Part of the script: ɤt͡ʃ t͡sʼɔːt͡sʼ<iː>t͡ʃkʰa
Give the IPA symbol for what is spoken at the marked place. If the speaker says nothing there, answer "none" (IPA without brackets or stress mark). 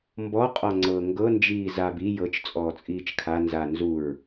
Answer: iː